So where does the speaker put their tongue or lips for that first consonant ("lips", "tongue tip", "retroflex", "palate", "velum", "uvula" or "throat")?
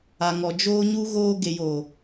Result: velum